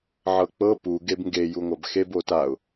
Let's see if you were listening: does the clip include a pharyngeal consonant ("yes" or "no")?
yes